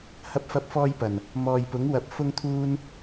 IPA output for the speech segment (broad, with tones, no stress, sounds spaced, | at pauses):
h ɐ˥ p̚ f ɐ˥ p̚ f ɔː˥ j p ɐ˨˩ n | m ɔː˨ j p ʊ˨˥ ŋ w ɐ˨˥ p̚ f ʊ˥ ŋ t̪ʰ uː˥ n